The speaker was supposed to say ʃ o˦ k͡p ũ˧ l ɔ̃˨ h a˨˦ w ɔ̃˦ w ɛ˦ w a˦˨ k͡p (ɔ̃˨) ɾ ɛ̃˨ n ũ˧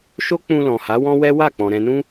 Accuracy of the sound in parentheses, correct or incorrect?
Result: correct